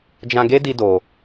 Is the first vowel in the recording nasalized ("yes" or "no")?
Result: yes